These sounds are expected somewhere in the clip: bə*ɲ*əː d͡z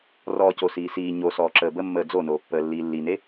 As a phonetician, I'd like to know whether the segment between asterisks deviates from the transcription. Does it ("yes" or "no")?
yes